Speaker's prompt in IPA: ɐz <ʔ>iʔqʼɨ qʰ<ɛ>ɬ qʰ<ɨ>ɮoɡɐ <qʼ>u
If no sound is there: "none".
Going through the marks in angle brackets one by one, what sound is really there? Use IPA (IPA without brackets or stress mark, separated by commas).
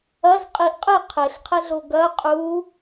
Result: qʼ, ɘ, ɛ, qʼ